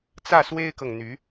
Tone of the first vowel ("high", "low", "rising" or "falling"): falling